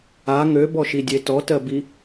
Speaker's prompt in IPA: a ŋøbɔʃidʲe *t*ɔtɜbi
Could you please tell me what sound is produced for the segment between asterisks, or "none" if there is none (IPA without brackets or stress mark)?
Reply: t